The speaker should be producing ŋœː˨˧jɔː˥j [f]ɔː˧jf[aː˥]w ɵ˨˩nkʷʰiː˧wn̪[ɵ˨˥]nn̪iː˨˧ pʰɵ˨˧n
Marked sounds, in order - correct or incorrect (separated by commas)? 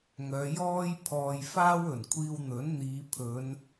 incorrect, correct, correct